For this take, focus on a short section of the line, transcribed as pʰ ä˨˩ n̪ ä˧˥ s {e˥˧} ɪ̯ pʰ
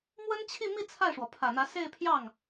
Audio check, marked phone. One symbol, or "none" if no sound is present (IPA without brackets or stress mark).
e˥˧